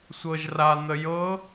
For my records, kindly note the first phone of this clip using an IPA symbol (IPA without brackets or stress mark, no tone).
sʷ